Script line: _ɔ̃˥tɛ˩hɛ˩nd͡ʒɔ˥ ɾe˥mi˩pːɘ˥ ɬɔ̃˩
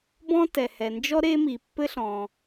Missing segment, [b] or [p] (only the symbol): b